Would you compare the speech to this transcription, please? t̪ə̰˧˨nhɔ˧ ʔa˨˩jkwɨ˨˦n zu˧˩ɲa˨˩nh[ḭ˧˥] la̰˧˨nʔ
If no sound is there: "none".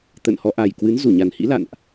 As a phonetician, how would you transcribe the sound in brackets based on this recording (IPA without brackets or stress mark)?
ḭ˧˥